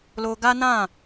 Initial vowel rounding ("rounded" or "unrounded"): rounded